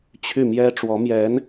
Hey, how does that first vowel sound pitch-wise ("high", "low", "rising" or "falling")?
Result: falling